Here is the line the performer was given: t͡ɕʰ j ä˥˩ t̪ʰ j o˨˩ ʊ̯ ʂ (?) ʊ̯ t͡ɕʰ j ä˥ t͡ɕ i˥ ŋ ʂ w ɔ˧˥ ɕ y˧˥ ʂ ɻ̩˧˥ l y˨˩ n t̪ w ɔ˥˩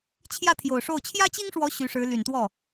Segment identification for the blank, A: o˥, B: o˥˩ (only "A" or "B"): B